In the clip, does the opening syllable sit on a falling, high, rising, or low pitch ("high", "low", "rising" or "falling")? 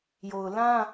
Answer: low